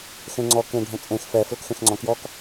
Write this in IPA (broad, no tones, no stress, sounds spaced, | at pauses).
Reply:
x ẽ ŋ͡ǀ ɔ k ẽ ɖʱ ə̃ t͡sʼ ẽ x f ɛ f l ə k x ẽ x ŋ͡ǀ ɔ̃ k j ɔ k